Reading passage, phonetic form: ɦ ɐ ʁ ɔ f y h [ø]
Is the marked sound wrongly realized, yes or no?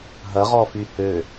no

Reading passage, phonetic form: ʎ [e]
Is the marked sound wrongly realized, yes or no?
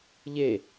no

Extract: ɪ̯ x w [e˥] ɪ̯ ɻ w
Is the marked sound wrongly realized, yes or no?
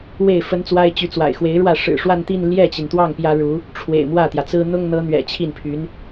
yes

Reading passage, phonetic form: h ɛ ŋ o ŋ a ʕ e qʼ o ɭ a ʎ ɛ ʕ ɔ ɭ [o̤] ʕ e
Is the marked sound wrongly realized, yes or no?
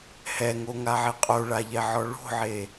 no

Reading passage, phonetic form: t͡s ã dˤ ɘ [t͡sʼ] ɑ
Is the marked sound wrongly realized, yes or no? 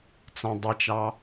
yes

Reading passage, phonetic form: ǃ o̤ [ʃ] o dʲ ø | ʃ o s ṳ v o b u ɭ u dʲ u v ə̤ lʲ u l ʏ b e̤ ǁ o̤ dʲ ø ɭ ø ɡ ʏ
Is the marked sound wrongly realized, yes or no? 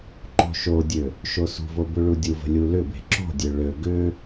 no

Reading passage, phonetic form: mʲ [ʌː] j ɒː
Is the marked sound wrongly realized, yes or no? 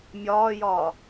yes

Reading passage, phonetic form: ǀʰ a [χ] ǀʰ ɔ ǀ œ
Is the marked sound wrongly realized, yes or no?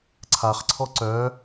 no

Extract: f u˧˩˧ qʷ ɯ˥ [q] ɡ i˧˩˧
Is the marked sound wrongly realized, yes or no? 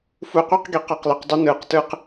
no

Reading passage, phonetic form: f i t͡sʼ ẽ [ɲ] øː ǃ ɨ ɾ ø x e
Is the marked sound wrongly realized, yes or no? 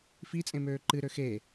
yes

